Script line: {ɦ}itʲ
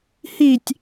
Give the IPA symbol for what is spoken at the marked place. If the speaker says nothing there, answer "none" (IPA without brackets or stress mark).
h